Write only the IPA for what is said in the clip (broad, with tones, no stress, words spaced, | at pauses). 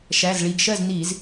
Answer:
ʃæ˩˧˩z ɭi˩˧˩ɡʃɜ˥˨z ni˧˩˧z